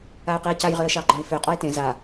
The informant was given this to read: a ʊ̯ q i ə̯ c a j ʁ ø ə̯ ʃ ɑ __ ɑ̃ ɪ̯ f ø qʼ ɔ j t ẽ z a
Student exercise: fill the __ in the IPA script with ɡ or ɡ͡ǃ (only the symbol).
ɡ͡ǃ